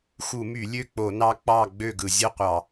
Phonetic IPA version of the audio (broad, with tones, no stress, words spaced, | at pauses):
xu˧˩˧my˧˩˧lʲø˥˨k͡po˧˩˧ nɑ˦k͡pɑ˥˨ ɡ͡bø˥˨ɡɯ˧˩˧zʲɯ˥˨ qʷɑ˧˩˧